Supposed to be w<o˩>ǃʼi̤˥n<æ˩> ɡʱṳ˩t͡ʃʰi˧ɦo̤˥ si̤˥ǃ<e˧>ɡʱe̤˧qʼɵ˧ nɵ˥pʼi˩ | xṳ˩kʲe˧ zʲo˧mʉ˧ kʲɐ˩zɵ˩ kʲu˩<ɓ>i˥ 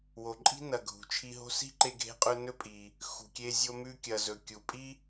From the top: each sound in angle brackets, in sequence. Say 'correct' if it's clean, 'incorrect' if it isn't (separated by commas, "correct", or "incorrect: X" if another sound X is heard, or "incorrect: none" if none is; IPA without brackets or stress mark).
correct, incorrect: ɐ˩, correct, incorrect: pʼ